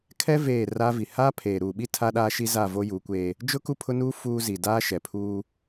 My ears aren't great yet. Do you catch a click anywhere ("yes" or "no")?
no